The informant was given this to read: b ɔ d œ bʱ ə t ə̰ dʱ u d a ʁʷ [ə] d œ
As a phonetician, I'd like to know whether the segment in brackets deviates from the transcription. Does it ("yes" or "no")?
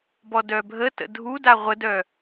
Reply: no